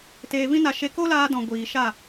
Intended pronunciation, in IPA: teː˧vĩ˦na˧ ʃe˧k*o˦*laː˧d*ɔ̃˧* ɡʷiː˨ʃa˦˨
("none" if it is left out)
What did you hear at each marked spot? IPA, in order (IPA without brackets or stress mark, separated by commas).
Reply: o˦, ɔ̃˨